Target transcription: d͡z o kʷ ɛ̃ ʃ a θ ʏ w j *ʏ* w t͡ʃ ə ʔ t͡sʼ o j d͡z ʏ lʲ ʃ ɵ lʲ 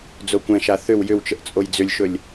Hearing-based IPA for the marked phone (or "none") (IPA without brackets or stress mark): ʏ